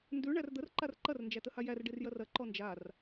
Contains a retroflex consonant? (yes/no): yes